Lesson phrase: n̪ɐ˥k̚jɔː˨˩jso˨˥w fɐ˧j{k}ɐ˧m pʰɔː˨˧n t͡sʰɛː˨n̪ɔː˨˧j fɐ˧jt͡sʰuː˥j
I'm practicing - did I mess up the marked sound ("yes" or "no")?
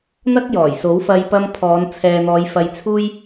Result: yes